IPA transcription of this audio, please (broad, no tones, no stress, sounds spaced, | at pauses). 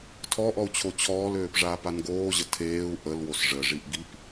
tʰ ɔ ʔ ɔ u̯ t͡ɕʰ o t͡ɕʰ ɔː l øː p ʐ aː p a n ɡ oː ʑ ə tʰ eː u̯ ʔ ə l w o s ʐ ə ʐ i ʔ ɡ i p